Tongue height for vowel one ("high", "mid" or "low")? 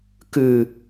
high